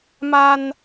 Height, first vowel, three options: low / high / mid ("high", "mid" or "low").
low